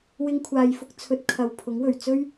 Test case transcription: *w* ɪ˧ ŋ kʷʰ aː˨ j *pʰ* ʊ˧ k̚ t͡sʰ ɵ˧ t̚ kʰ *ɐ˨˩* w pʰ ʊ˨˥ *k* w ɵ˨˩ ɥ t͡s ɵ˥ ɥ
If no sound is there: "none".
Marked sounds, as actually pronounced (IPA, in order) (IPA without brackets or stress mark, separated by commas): w, f, ɐ˨˩, ŋ